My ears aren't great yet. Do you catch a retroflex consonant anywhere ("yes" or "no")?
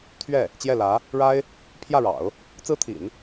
yes